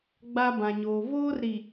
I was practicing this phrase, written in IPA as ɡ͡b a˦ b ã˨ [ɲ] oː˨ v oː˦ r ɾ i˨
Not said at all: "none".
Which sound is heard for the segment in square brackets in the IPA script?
ɲ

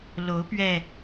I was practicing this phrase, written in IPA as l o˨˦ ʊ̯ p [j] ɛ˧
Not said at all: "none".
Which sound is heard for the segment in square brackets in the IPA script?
ɥ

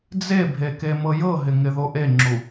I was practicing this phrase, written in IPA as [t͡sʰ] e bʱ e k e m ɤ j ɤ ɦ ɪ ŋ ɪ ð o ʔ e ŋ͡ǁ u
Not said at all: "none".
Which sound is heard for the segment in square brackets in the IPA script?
d͡z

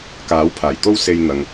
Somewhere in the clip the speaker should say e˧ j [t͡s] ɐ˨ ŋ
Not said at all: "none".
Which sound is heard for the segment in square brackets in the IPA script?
n̪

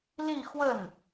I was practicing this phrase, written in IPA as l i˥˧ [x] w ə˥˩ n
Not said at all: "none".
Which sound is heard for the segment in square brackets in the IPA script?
x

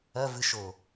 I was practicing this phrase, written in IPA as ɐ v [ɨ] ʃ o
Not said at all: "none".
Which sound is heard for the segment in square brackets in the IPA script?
ɨ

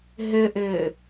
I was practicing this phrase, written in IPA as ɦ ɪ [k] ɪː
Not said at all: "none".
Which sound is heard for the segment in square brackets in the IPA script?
ʔ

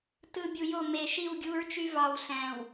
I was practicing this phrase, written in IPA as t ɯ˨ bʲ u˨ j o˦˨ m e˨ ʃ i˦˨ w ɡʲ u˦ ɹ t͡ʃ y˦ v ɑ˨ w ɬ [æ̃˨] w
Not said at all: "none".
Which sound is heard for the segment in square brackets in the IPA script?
æ̃˨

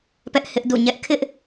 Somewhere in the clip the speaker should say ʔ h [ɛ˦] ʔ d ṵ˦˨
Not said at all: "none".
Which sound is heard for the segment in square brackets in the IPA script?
ɪ˦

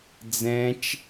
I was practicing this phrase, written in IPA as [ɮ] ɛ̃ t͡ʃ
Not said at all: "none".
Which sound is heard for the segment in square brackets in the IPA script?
d͡z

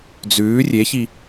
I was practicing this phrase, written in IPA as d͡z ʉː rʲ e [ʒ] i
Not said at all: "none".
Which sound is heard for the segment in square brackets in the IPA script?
ç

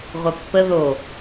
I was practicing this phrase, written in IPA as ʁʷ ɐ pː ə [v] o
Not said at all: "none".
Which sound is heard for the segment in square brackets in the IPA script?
ð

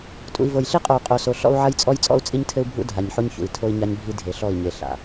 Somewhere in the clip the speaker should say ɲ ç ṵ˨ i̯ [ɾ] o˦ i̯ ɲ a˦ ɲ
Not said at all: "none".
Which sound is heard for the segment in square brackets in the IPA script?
tʰ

